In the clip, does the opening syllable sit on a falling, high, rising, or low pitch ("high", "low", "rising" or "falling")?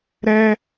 high